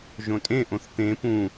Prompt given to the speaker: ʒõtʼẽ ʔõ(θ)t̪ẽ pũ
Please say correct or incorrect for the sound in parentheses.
correct